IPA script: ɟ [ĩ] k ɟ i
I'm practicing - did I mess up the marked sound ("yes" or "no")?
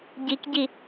yes